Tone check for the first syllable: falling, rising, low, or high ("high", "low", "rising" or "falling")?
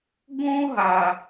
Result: high